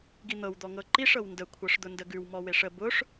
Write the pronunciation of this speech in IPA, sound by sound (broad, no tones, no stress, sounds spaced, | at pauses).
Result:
ɡ i n̪ ɤ w d̪ ɔ ŋ ɤ ǃ i ʂ ɤ w n d ə kʷʰ ɤ ʂ d̪ ʊ n d ə ɡ ʉ w m ɔ w e ʂ ə b ʊ ʂ